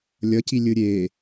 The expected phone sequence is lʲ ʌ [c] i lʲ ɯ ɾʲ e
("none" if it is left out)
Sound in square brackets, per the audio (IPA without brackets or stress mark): c